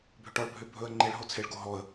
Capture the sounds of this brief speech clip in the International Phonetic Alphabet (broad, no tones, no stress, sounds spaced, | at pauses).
bʱ ʏ ʈ ɔ ɭ bʱ ʏ bʱ ɵ ə̯ ŋ͡ǃ e ɭ ɦ o t͡sʰ e ɭ ɡ o ɦ ɔ ə̯